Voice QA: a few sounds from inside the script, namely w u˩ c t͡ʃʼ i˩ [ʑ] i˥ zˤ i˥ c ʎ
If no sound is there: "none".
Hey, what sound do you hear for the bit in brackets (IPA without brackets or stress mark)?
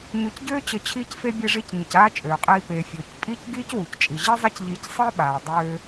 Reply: ʑ